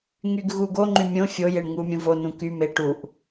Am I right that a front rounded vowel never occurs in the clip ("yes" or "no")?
no